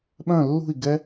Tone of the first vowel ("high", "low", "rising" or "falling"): falling